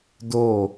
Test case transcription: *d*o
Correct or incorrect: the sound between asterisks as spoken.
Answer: correct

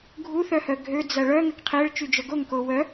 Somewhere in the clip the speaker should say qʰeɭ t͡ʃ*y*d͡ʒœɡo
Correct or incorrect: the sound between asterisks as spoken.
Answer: correct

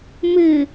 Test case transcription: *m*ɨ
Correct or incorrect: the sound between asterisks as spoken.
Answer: correct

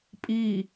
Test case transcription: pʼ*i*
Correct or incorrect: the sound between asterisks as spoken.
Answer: incorrect: iː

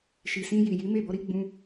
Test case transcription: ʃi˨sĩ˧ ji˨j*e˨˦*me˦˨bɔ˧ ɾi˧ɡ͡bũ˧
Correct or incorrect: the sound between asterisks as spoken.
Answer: incorrect: i˨˦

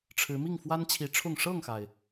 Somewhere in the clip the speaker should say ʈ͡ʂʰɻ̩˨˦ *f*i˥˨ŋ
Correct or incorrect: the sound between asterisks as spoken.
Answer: incorrect: m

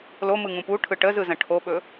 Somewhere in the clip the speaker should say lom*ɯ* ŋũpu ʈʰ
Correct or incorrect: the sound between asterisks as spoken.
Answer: correct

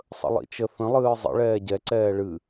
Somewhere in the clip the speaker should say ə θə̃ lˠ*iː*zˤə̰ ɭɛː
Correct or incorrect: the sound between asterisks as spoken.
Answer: incorrect: ɨː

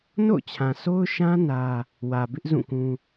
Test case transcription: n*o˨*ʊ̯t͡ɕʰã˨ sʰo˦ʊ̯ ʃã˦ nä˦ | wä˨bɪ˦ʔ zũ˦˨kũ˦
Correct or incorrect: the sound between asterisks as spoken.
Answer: incorrect: o̰˦˨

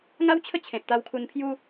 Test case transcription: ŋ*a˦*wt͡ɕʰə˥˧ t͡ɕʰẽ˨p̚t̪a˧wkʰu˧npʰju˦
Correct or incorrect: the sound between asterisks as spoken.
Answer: correct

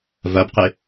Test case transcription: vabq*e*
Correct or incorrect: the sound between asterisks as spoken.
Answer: correct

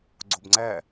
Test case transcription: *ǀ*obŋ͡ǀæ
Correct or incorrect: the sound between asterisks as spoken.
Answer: incorrect: ɡ͡ǀ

